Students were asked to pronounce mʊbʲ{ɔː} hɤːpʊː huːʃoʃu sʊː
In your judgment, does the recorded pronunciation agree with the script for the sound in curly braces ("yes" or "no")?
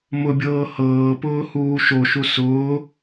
no